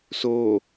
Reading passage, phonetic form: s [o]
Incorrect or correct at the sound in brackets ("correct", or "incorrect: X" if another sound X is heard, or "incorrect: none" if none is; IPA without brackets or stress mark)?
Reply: correct